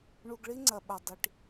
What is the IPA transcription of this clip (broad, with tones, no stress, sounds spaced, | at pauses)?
ɳ u˨ ɡ ɭ i˦ ŋ͡ǀ ɐ˨ ɓ ɐ˨ dˤ i˨ ʈ